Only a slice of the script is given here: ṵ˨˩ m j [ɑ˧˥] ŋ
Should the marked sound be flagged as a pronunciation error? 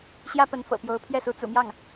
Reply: yes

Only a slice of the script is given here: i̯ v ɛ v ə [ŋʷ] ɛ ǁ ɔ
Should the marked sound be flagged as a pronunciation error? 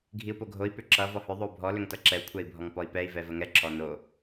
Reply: yes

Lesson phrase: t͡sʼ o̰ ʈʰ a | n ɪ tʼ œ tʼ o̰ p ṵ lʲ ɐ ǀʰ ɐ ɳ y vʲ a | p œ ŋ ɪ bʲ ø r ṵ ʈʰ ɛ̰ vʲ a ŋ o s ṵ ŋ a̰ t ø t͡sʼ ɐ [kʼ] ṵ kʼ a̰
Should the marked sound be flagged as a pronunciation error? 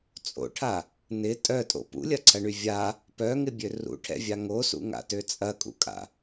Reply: no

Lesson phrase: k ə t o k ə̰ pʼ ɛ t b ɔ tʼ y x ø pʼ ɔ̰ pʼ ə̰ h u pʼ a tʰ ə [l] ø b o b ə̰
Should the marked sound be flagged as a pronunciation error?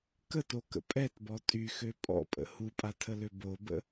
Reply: no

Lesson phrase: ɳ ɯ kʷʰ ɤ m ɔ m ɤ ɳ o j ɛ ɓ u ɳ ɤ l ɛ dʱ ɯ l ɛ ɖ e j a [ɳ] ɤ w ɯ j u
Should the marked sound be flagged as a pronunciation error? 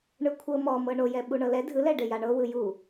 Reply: no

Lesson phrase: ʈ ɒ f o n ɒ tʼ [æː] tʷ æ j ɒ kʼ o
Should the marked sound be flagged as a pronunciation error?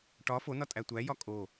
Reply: yes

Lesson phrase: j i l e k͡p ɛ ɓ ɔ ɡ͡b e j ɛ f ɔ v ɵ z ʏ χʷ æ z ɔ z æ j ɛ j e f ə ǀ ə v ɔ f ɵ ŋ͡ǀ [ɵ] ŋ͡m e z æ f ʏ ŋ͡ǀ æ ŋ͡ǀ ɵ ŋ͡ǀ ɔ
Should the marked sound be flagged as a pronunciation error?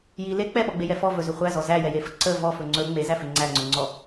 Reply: no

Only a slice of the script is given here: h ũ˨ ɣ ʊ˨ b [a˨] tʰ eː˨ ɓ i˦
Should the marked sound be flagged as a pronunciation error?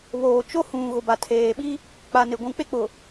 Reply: no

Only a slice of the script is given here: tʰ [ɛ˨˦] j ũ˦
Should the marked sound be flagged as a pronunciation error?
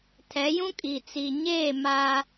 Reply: no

